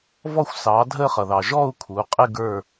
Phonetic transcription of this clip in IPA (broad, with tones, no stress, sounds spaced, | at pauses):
v ɔ˦˨ xʷ s ɑː˩˧ dʱ əː˦˨ χ ʌ˩ ð ɑ˩ ʒ ɔ˦˨ u̯ kʰ u˩˧ qʼ ɪ˦˨ ɡ ə˞˦˨